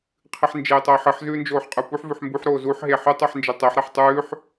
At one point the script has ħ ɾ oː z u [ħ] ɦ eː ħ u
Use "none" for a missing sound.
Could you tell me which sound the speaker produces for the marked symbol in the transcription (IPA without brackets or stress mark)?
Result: ħ